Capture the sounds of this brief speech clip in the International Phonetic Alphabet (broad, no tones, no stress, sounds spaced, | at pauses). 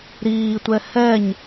ɾ iː tʷ ɛ h ɛ ɲ